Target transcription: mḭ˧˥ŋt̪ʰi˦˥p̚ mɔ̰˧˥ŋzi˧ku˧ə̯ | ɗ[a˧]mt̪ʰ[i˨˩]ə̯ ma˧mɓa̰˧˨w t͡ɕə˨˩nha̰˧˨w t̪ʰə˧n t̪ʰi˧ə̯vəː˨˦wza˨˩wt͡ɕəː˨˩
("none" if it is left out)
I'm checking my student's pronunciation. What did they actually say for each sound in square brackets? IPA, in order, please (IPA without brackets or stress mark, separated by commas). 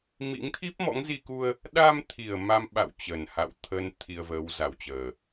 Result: a˧, i˨˩